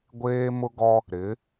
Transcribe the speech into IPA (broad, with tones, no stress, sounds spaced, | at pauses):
ɡʷ eː˦ m ʊ˦ ɡ ɔ˦ | ɾ ɪ˨˦